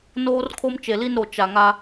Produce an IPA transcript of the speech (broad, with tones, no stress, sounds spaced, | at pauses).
n oː˦ r kʰ o˦ m t͡ʃ e˨ l i˦ n ɾ o˨ t͡ʃ a˨ ŋ a˦